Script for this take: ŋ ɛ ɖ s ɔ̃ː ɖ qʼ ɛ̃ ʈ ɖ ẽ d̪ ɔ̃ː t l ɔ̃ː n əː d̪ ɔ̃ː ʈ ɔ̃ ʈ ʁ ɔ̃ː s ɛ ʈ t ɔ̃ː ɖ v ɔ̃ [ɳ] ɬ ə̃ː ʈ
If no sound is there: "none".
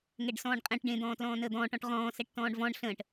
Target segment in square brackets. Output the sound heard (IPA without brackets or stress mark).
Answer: ɳ